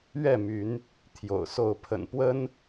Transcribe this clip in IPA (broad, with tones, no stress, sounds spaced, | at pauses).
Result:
ɥ ɛ˥˨ m y˨˦ n | t̪ʰ j o̰˨˩ ʊ̯ s o˥˨ ʊ̯ pʰ ə̰˨˩ n p w ə˦ n